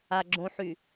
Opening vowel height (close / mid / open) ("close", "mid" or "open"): open